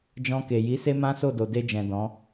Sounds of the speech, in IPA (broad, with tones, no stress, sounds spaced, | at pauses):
d͡ʒ ɔ̃˧ k e˨ j i˨˦ s e˦ m ã˦ s o˦˨ d o˨ d e˧ d͡ʒ ɛ̃˨ d ɔ̃˨˦